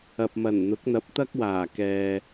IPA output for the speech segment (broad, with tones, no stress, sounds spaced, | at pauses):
ɐ˨ p̚ m ɐ˨˩ n n̪ ʊ˨˥ k̚ n̪ ɐ˨˥ p̚ t̪ ɐ˥ k̚ w aː˨˩ k ɛː˨